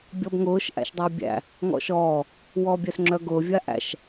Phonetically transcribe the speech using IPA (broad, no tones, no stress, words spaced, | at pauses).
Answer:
bʲɔbŋʊːʃ ʔæ̰ʃdˤœbʲæ̰ | ŋɔ̰ʃɔː | wɔːbʲœsŋ͡ǁœɡʊː vʲaʔæ̰ʃ